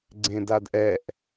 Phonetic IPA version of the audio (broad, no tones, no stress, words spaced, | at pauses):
ɡ͡ǀẽdadʔɛʔ